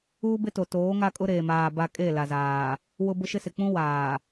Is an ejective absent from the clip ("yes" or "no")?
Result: no